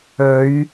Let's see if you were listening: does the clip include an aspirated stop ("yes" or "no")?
no